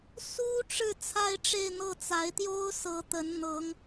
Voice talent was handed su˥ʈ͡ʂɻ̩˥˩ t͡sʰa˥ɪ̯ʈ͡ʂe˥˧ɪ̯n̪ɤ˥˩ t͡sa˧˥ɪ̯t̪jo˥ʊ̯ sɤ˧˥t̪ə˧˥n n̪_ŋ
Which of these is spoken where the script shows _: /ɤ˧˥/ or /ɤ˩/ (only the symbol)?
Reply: ɤ˧˥